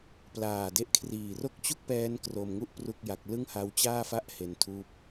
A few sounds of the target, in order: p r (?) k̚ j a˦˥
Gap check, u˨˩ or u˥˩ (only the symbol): u˥˩